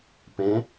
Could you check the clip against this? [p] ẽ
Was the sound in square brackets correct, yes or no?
yes